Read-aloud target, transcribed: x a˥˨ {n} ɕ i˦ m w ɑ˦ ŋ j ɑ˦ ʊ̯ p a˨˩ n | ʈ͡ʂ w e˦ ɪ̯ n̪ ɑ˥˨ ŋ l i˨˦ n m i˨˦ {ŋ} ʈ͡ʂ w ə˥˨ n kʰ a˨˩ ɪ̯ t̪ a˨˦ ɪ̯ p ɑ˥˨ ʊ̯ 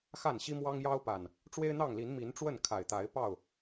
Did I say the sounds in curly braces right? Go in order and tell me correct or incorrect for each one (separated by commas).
correct, incorrect